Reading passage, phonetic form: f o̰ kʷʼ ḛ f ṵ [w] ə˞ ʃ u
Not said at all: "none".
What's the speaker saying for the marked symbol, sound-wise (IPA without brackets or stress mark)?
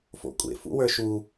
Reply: w